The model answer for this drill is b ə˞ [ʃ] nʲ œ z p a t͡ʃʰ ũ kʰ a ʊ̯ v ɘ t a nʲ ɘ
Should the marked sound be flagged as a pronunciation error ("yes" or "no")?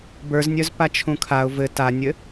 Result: yes